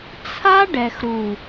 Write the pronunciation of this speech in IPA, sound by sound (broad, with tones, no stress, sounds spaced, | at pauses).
t͡sʰ a˦ ɖ ɛ˨ x ɾ u˨